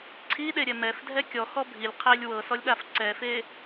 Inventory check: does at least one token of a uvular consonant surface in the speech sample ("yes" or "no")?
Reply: yes